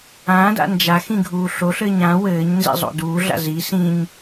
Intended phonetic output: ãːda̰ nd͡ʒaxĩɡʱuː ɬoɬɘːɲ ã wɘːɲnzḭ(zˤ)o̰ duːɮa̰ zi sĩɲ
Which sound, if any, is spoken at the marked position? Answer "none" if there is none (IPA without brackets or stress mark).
zˤ